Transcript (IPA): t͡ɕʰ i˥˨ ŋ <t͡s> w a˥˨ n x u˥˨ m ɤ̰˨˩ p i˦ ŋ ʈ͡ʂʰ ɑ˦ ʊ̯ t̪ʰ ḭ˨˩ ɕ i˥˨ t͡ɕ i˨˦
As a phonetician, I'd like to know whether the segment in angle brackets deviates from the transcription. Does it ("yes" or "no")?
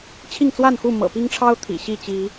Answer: no